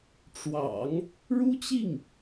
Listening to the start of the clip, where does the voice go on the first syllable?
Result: low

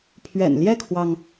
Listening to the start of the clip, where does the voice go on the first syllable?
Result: low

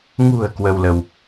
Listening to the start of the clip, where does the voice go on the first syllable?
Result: low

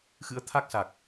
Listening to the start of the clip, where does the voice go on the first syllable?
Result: rising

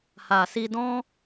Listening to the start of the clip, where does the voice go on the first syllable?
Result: low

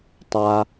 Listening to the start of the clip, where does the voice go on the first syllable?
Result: low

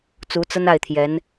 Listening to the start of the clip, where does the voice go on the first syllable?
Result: rising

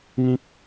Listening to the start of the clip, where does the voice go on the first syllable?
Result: high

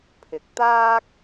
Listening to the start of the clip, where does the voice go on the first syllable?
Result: rising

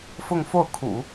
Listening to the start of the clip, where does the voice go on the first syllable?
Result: falling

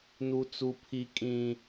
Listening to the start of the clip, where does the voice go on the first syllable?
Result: high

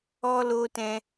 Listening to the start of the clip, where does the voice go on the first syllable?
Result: high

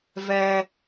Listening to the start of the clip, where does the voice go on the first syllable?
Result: high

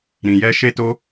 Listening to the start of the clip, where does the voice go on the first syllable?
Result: low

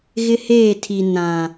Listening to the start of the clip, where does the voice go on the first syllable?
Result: high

